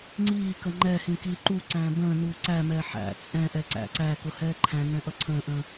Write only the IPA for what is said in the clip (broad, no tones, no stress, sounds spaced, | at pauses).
ŋ͡ǀ iː k ə ŋ͡ǃ ɛ h ĩ k iː ǃ u ǀ æ̃ː b ə̃ː n uː ǀ æ m ɛː ħ æ̰ t͡sʼ ɛ̃ ʔ ɛ ǀ æ̰ ǀ æ k ʊ h ɛː ǃʰ æ̃ n ɛ̃ ʔ ʌ ǀʰ ə̃ː ʔ ə̃